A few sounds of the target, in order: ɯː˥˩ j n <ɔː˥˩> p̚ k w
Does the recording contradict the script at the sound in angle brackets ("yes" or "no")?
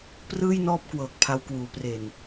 no